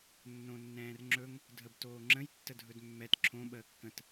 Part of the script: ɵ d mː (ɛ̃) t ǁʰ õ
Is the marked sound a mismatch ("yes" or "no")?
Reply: yes